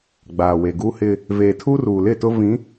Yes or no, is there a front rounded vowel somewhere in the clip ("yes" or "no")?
no